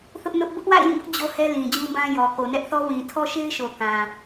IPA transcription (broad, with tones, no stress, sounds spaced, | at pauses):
θ ʊ˦ ʔ n ʊ˦ ʔ b ʊ˦ ʔ w a̰˦˨ ɪ̯ j ĩ˦˨ b ʊ˦ ʔ d͡ʑ o˦ h ɛ˦ l ĩ˨ d͡ʑ ũ˦ b ã˦ j ɔ˨ k o˨ n ɛ˦ ʔ θ ɔ˦ w ĩ˨ tʰ ɔ˦ ʃ e˦ ɪ̯ ʃ o˨ k ã˨